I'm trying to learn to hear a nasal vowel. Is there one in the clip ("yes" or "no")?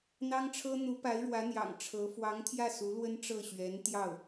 no